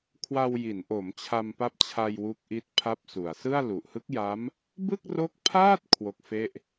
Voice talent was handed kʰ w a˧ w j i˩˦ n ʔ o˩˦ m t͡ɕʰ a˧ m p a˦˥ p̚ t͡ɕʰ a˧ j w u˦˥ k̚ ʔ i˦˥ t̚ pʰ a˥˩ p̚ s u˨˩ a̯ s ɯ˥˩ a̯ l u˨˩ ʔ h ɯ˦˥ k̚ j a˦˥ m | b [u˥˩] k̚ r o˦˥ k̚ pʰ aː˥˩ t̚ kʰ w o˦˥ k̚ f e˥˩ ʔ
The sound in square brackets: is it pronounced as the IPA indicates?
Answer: no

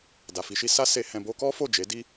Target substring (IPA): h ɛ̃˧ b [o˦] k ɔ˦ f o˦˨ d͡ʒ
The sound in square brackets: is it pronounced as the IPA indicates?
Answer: yes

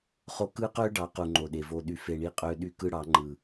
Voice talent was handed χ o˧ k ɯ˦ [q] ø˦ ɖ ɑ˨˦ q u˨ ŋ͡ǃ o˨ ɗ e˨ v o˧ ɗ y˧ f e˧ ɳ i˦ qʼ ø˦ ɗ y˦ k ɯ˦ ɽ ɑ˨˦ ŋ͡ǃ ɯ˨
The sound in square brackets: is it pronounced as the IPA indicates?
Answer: yes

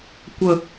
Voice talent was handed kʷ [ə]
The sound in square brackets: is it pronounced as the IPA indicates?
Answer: yes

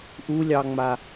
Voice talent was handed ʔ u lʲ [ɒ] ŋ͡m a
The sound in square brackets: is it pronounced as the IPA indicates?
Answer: no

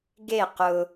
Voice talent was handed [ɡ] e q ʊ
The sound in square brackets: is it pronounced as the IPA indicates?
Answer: yes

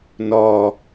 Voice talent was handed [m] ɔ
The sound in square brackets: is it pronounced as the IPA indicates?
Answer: no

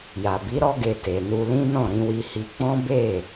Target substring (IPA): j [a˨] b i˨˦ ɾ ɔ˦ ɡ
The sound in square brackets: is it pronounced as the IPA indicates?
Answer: yes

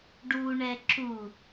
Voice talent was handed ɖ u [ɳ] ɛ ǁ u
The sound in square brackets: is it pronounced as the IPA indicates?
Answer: yes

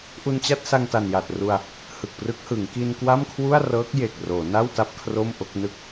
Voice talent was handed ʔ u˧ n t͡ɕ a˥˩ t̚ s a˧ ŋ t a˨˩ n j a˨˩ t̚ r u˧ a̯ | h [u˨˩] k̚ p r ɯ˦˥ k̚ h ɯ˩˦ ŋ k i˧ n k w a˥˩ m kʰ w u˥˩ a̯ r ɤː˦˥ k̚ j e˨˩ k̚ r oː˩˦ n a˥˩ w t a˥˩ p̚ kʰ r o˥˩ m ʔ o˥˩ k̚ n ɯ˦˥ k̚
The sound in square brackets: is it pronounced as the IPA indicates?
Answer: no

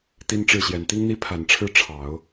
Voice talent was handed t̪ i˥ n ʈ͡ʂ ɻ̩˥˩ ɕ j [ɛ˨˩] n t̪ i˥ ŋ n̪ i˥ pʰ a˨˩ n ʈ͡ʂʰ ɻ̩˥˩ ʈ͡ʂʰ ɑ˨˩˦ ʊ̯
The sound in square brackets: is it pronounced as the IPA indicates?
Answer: yes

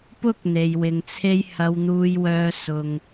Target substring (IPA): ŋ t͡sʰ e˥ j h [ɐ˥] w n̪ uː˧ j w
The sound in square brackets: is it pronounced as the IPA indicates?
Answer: no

